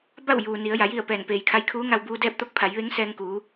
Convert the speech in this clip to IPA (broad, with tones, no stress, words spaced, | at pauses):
ba˥˨w juː˩ ni˩˧ə̯ ja˩˧ji˥˨ə̯pɛː˧˩n peː˩jkʰa˧jkʰuː˧˥ŋa˧w buː˧dɛː˥˨p̚t̪o˥˨k̚ pʰa˩˧jʋe˧˥ŋ sɛː˧ŋkuː˩˧